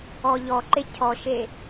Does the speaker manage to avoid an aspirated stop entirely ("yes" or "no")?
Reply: no